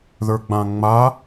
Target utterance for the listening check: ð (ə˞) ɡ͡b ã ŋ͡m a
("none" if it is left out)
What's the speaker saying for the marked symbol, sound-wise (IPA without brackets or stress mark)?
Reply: ə˞